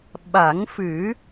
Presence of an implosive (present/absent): present